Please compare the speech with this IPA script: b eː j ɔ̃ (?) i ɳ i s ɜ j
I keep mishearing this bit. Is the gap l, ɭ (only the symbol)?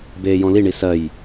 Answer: l